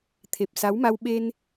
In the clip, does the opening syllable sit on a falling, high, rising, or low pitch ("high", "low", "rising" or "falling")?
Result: low